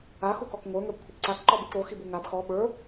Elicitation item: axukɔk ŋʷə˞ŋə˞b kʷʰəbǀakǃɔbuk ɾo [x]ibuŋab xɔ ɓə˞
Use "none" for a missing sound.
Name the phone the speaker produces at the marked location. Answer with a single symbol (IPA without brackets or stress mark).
x